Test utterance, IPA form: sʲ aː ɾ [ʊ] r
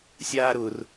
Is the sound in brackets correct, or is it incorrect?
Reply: correct